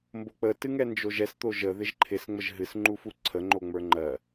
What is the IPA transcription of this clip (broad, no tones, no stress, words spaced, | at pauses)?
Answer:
mbok͡pə tɨŋɛnd͡ʒoʒɛs t̪oʒə ðɪʒǃʰɪs ŋ͡məʒɦɨs ŋ͡ǃufuǀʰə ŋ͡ǃoŋ͡mə˞ŋ͡ǃɜ